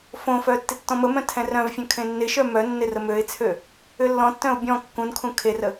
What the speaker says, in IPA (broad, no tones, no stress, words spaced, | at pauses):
fõfœ tːɪtːɔ̃məmœ̃ tʰɛ̃rœ̃vfʲœ̃ kʰẽnːɪʃœ mœ nːɪrəmøɪ̯t͡sʰø | ʏlːɔ̃tːœ̃ʊ̯ bʲɔ̃ kːũnkʰũ kʰerə